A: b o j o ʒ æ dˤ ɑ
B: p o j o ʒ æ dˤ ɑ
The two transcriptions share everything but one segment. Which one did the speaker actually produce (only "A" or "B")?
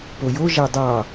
B